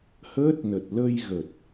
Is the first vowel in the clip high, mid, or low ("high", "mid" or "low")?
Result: mid